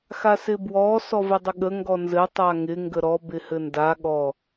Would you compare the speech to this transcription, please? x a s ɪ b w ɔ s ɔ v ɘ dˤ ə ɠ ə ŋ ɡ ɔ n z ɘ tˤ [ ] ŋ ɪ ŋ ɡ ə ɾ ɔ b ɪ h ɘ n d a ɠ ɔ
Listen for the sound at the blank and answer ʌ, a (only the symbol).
a